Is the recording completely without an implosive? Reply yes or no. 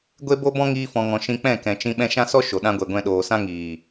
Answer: no